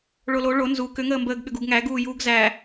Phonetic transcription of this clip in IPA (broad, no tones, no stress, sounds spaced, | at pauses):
ɭ o l o ɭ o n z u k ʏ ŋ əː m b əː ɡ ɠ ʏ ɡ u ɡ ŋ æ ɡ uː j uː ɡ z æ